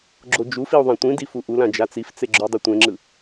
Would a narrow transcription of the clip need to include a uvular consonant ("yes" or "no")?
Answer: no